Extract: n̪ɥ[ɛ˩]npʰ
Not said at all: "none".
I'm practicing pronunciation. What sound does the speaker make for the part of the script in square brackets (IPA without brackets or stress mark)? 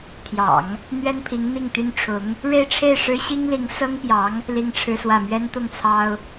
ɛ˥